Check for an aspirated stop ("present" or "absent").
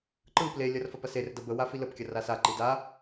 absent